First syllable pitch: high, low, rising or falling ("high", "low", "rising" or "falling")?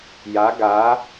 rising